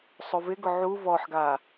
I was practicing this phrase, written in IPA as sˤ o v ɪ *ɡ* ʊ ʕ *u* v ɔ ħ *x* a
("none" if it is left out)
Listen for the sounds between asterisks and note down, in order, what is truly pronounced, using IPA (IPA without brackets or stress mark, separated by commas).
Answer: ɡ, u, ɡ